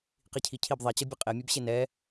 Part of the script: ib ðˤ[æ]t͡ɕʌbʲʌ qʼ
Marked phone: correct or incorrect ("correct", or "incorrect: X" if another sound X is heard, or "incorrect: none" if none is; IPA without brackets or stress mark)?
incorrect: ɛ